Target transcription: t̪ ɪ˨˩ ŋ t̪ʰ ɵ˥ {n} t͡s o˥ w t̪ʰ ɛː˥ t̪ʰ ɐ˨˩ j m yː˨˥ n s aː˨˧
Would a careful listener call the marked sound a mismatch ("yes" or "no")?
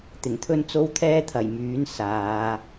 no